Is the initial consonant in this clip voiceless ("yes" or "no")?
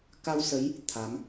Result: yes